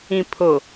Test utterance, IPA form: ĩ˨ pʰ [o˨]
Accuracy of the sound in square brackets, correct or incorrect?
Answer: correct